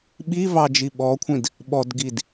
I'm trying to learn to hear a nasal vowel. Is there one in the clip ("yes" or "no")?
yes